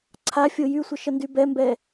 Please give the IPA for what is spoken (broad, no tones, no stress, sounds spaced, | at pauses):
ǀʰ a fʲ o j y sʷ ə ʃ ə n d y b ɛ m b ɛ